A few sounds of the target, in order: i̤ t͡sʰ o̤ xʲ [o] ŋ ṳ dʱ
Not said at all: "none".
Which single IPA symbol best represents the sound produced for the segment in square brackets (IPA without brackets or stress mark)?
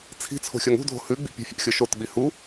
o